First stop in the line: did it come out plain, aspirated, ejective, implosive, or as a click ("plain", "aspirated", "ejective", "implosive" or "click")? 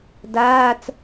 plain